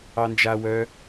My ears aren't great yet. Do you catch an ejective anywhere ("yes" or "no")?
no